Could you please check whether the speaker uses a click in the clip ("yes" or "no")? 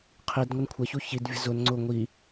yes